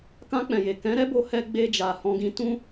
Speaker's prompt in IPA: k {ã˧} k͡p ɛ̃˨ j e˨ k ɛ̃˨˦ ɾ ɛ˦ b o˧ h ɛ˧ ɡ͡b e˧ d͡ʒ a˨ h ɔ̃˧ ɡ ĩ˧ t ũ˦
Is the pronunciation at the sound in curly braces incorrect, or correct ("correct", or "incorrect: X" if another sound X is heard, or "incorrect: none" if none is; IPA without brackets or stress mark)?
correct